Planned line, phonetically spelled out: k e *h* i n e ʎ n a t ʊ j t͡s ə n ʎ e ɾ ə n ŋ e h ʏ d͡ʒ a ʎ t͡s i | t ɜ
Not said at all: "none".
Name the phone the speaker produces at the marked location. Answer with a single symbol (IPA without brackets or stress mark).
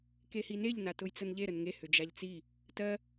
h